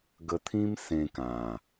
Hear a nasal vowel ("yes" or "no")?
yes